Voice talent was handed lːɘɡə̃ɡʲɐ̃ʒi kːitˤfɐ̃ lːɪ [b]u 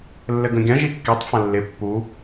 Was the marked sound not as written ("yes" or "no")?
yes